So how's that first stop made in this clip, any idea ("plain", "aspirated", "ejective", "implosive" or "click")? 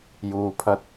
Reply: aspirated